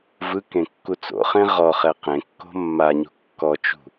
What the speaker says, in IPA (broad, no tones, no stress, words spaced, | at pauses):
vɯkẽ kːut͡so̰χẽ ʁɔχɛ qẽkːo̤ mːaɲṳ kːɔt͡ʃṳ